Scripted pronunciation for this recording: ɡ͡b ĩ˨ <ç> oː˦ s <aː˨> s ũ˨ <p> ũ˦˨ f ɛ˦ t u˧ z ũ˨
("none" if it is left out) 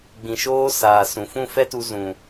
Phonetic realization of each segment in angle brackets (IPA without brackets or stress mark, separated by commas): ʃ, aː˨, f